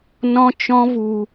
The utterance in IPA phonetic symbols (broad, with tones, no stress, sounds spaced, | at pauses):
n ɔ̃˦ t͡ʃ ɔ̃˦ v u˧